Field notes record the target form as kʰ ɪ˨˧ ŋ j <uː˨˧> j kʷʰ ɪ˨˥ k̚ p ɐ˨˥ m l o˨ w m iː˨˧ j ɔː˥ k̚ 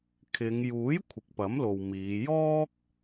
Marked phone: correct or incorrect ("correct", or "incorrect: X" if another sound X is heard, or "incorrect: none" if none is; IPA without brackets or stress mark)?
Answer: incorrect: uː˨˥